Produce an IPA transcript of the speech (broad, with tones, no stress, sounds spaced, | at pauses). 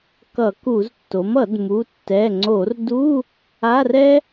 k ʌ˧˩˧ k u˧˩˧ z tː o˩˥ m ʌ˧˩˧ d m u˩˧˩ tː ɛ˩˧˩ ŋ͡ǀ o˧˩˧ r d u˧˥˧ | a˧˥˧ r ɛ˥